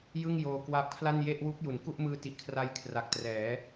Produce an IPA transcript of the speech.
j ɯ˥˩ ŋ j oː˧ k w a˦˥ p̚ kʰ l a˥˩ n j e˥˩ ʔ w u˦˥ k̚ j u˩˦ n k u˥˩ ʔ m ɯː˦˥ t i˨˩ ʔ kʰ r a˧ j kʰ r a˨˩ k̚ t r ɛː˩˦

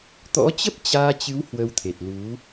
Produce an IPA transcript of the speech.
t̪ ɔ̰˧˥ t͡ɕ ə˦˥ p̚ t͡ɕ aː˧ t͡ɕ ɨ˨˦ w h w ə˧ w t̪ʰ e˨˩ t̚ l u˨˦

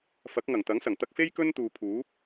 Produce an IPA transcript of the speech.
f ɐ˨˥ k̚ ŋ ɐ˨˩ ŋ t̪ ɐ˨˥ ŋ s ɐ˨˩ ŋ t̪ ɐ˧ k̚ f e˥ j k ɵ˥ n t̪ uː˨ pʰ uː˨˥ p̚

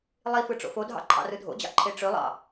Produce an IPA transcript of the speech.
lˠ i f ɯ ʈ͡ʂ o̰ f o dʱ ɑ̰ ǃʰ ɑ̰ r ɯ dʱ o̰ d͡ʑ ɑ̰ ǃʰ e ʈ͡ʂ ø lˠ ɑ̰

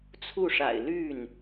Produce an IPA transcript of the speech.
t͡sʰ u˥˩ ʂ a̰˨˩ ɪ̯ l y˥˩ n

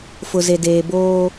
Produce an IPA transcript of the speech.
f ʊ˨ z e˨ d eː˨ b oː˦

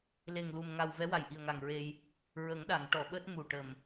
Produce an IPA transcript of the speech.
l e˨˩ ŋ l u˨˩ m ŋ a˨˩ w v ɛ˧˥ w a˨˩ j ʔ i˨˩ ə̯ ŋ a˨˩ ŋ ɹ e˧ j | ɹ ə˨˩˦ ŋ ɗ a˨˩˨ ŋ ʈ ɔ˨˩˨ ɓ əː˦˥ t̚ m u˨˩ ʈ ə˨˩ m

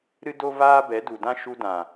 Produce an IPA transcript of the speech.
ɾ ɨ˦ d o˦ v aː˦ b ɛ˨˦ d u˨ d ã˦ ʃ u˧ d ã˨

